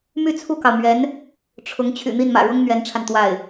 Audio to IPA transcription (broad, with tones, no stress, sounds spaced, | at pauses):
m y˥˧ t͡sʰ u˥˩ k ɑ˩ ʊ̯ m ɥ ɛ˧˥ n | ʈ͡ʂʰ ʊ˧˥ ŋ t͡ɕʰ y̰˨˩ n̪ i˥˩ n m ä̰˨˩ ɻ ʊ˥ ŋ n̪ ɥ ɛ˧˥ n ʈ͡ʂʰ a˧ n t̪ w a˥˩ ɪ̯